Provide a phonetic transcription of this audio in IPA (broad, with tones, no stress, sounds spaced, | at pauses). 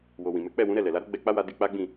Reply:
w o˨ w ĩ˨ m ɛ˨˦ k͡p ɛ˦˨ w ũ˨˦ ɾ ɛ˦˨ l ɛ˨ l a˨˦ ɾ o˦ ɡ͡b ɛ˧ k͡p a˦ w a˧ d i˧ k͡p a˦ ɡ͡b ĩ˦˨